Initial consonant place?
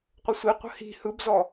uvular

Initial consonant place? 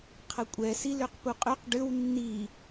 uvular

